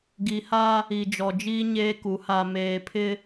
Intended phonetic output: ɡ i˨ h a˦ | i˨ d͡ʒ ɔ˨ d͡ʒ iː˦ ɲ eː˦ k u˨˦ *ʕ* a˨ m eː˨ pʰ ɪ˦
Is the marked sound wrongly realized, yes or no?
yes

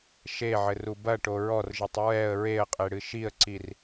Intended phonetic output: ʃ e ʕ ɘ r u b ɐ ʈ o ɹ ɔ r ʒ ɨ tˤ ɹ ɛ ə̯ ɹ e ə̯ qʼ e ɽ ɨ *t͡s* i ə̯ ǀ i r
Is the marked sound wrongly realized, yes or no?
yes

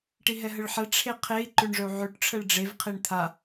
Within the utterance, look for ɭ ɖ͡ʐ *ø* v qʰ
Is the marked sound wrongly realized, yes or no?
yes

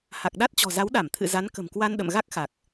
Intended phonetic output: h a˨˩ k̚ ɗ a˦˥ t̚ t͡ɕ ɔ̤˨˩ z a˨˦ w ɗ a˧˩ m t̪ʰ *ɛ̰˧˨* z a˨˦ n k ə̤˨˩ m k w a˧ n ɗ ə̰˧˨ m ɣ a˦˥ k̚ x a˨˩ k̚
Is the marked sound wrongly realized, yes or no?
yes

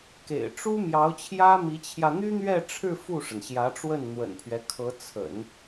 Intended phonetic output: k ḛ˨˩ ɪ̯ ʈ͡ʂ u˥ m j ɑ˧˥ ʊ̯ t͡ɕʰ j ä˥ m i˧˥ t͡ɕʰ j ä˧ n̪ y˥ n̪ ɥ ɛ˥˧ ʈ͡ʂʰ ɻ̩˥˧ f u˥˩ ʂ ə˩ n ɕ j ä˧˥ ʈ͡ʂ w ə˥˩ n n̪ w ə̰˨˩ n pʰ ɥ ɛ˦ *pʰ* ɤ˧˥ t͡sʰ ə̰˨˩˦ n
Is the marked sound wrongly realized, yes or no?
yes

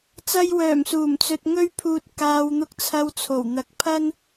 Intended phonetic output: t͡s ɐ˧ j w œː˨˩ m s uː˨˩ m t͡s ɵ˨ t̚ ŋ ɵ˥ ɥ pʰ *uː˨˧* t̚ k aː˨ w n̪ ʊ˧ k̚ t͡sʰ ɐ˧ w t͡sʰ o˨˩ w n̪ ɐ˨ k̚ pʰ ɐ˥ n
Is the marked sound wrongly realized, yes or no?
yes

